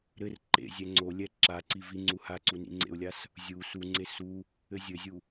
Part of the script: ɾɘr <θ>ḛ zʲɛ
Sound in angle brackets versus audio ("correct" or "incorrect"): incorrect